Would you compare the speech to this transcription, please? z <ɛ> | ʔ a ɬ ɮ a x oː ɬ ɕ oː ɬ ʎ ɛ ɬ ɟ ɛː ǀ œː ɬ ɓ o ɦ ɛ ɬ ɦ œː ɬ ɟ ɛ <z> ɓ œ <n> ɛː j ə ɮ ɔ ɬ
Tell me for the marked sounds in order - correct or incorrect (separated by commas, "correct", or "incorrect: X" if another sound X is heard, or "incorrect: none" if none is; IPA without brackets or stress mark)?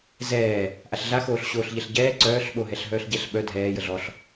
incorrect: ɛː, incorrect: ɬ, incorrect: dʱ